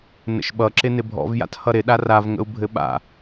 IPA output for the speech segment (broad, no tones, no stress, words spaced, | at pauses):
nə̰ʃɓʌ ǁɪnɪbʱɔ̰vja̰t hʌɾɪɗa ravŋə̰u̯ bʱɘɓa̰